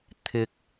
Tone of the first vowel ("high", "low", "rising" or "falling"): low